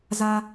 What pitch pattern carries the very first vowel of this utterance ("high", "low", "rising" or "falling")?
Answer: high